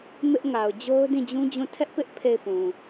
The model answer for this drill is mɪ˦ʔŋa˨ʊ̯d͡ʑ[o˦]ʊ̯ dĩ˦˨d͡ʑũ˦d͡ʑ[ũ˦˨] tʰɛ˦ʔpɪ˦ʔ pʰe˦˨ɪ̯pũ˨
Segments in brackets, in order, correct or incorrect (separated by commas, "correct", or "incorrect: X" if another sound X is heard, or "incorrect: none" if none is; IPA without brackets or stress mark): correct, correct